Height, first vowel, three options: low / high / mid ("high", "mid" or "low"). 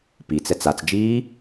high